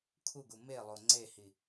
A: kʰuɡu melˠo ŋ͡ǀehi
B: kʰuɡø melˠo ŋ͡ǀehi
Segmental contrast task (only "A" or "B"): A